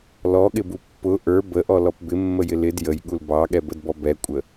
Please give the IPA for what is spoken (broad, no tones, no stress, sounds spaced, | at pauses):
l ɔ ɠ ɪ b u pː ʊ ʔ ə˞ b ə ʔ ɔ l ɔ p b ɪ mː ə j ɪ l ɪ d j ə j ɠ u l b ɑ ɠ ɛ b ə d b ɔ b ɛ kʷʼ ə